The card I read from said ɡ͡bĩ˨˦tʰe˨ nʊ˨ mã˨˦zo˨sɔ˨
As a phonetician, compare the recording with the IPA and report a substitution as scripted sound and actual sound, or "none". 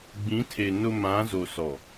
none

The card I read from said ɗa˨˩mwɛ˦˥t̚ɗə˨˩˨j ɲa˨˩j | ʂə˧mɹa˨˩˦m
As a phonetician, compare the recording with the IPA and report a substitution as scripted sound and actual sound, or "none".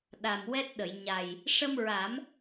none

